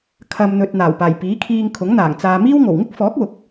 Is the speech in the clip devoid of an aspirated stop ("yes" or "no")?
no